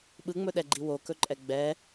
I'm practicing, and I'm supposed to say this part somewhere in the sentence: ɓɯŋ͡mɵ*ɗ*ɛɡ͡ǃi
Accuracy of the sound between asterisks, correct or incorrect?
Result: correct